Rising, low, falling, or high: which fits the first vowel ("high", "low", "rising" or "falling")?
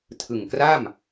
low